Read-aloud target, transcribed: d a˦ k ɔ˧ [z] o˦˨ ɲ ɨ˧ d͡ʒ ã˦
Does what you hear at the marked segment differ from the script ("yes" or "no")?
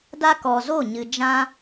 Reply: no